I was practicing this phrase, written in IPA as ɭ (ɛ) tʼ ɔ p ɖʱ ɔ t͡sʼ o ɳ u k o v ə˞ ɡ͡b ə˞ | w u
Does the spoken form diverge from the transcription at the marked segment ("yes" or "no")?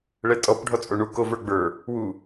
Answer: no